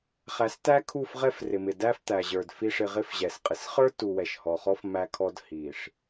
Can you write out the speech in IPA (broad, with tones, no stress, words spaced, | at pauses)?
χæ˨stæ˦kʰu˦˨f ʁɛ˦frɪ˨mɪ˨ dæ˦ft̪æ˨ʑə˞˨d fi˨ʂɪ˨ ʁɪ˦fʑɛ˨sqʼɪ˨s χə˞˦tu˨wɛ˨ʃ hɔ˨χɔ˦f mæ˦kʰɔ˦d hi˨ʂ